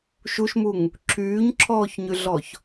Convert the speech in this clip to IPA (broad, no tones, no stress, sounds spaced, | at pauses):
ʃ u ʃ m u ŋ | ǁʰ yː ɲ ǁʰ ɔː ç ɲ y ɮ ɔ ç